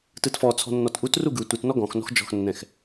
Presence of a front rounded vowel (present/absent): absent